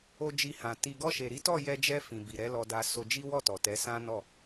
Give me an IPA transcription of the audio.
o˧ d͡ʒ i˧ h ã˨ t i˧ ɡ ɔ˧ ʃ e˨ ɾ i˨˦ t ɔ˦˨ j ɛ˧ d͡ʒ ɛ˧ f ĩ˨ b i˨ ɾ ɛ˨˦ l ɔ˧ d a˧ s o˧ d͡ʒ i˦ w ɔ˦˨ t ɔ˨ t ɛ˨˦ s ã˦ n ɔ˦˨

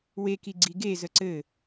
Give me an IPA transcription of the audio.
w e k i ɡ͡ǀ i ɡ e z ə ǀ ɘ

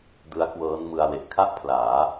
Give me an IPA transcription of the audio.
d ɯ˦˥ a̯ k w ɤː˦˥ n m ɯ˧ a̯ w e˨˩ ʔ kʰ a˥˩ ʔ pʰ l aː˩˦

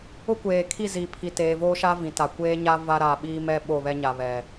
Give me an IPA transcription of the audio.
ʊ˦ kʷ eː˨ kʰ i˦˨ z iː˨ pʰ i˨ t eː˨ v oː˦ ʃ a˦ v ĩ˨ t a˨ kʷ eː˦ ɲ a˦ v a˦ ɾ a˨ ɓ iː˦ m ɛ˦ ɓ o˦˨ β ɛ˦ ɲ a˨ β ɛ˨

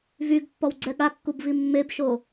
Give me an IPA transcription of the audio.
v y ɡ pː ɔ w ɡ͡ǀ ɛ ɠ a kː u b v i mː e b ʃ o

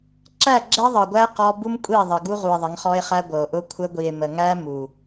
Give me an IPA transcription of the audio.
ǁ æ˦˨ ɡ͡ǁ ɛ˦ ðˤ ɤ˨ ɡʷ æ˦ q ɔ˦ b u˦ m kʷʼ i˦˨ ðˤ ə˨ ɡ u˦ ʁ u˨ e̯ ðˤ ə˨˦ ŋ χ ɔ˦ e̯ χ æ˦ ɡʷ ɤ˨ o̯ ʔ ʊ˦ kʷʰ ə˦ ɡʷ i˨ e̯ m ə˨ ŋ æ˦ m u˨

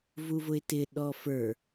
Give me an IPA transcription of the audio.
v u v ʊ ɪ̯ t ɪ ɗ ɔ f ə˞

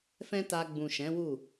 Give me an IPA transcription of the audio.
f ɛ̃˦ t a˧ ɡ͡b ũ˨ ʃ ɛ̃˨˦ w u˦˨

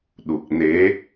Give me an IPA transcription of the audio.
ɗ u˨˩ k̚ n e˨˦

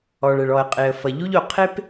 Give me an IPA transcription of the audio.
ɔ˩ ɭ ɛ˩ ɭ ɔ˩ ə̯ qʼ e˩ ə̯ f ʌ˩ ʎ u˥ ʎ o˩ qʰ e˥ p

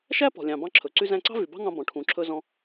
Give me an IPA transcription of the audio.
ʃ æ˥ p ɔ̤˩ lʲ ɑ̃˩ b ɑ̃˧ ǁʰ ɵ˩ ǀ y˧ z æ̃˧ ǀ ɑ̤˥ v y˩ b ɑ̤˥ ŋ ɑ̃˧ b ɔ̃˩ ʈʰ ũ˩ ǁʰ ɵ˧ z ɔ̃˧

